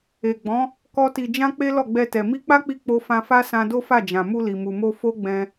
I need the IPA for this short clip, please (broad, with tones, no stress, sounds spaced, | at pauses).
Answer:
e˨ ɡ͡b ɔ̃˨˦ | k ɔ˦ t i˧ d͡ʒ ã˦ k͡p e˦ l ɔ˦˨ ɡ͡b ɛ˧ t ɛ˨ m i˧ k͡p a˦ k͡p i˧ k͡p o˧ f ã˧ f a˦ s ã˧ d o˦ f a˦˨ d͡ʒ ã˨ m u˧ l i˨ m u˨ m o˧ f o˦ ɡ͡b ɛ̃˧